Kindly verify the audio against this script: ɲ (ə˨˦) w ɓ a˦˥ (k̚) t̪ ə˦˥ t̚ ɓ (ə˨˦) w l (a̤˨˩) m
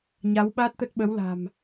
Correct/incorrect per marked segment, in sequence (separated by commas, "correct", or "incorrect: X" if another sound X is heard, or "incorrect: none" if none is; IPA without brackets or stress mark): incorrect: a˨˦, incorrect: t̚, correct, correct